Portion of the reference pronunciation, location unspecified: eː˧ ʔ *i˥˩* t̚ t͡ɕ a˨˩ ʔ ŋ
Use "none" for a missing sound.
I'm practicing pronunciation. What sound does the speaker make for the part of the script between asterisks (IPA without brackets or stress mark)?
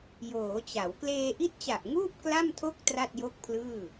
i˦˥